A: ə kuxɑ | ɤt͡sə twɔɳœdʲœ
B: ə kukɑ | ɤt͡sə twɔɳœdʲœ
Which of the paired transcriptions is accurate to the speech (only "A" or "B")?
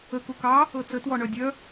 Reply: B